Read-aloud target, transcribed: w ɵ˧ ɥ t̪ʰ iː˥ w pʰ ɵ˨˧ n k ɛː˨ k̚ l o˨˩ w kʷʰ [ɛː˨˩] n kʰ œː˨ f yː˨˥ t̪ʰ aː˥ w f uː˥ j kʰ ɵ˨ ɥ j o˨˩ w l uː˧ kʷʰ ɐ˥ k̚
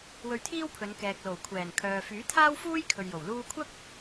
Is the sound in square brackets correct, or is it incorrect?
correct